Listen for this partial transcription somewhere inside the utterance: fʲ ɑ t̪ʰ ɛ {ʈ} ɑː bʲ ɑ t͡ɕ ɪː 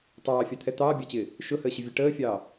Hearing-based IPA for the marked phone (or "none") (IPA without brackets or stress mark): t̪